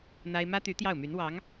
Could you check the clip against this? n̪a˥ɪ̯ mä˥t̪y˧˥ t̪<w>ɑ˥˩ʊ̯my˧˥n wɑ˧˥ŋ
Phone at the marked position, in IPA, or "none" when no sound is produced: j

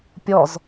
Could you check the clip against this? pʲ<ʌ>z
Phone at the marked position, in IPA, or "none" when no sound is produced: ɔ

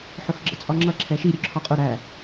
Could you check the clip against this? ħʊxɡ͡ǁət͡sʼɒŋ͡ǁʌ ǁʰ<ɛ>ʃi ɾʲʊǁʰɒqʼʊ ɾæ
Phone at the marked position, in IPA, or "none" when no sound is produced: ɛ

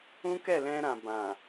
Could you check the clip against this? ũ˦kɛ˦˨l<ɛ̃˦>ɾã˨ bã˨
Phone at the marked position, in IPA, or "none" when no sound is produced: ɛ̃˧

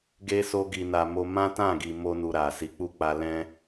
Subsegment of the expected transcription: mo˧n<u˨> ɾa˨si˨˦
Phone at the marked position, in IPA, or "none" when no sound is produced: u˨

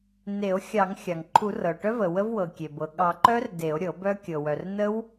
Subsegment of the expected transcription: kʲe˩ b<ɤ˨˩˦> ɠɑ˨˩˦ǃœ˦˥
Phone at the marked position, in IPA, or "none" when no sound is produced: ɤ˩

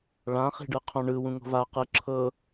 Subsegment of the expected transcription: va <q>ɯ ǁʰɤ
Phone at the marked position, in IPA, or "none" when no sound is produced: q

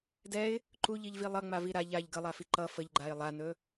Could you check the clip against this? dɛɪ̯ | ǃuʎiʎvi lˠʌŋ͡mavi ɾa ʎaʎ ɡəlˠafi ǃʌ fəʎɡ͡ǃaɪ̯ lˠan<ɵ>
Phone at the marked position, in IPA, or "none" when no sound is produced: ɵ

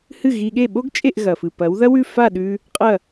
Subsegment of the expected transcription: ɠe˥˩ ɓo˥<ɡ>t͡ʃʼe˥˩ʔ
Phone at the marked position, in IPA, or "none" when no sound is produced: ɡ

